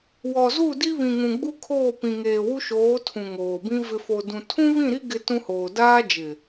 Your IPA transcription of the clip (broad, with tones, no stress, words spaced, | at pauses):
wɔ˨ zu˦˨di˦ βĩ˨ŋũ˨ɡ͡bu˦ kʰoː˦˨pĩ˨ ŋeː˨wu˦ʃoː˨˦ tʰũ˨ŋoː˨bĩ˦ vɪ˨ fo˨dũ˨ tʰũ˦βĩ˦˨ɾi˦ ɡɪ˦tũ˦hoː˨ daː˦d͡ʒɪ˨